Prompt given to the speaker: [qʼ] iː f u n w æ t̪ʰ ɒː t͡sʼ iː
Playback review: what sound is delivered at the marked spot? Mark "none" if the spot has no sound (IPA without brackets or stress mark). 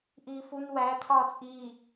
ʔ